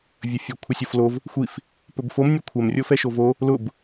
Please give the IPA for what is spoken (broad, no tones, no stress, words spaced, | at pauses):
vʲəfʲə kʷʰəsʲoflov | xʷif | pɵbfom nʲɵkʷʰɛm rʲofɛʃovo | lʊb